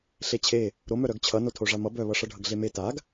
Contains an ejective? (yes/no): no